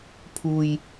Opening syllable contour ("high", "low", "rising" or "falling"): low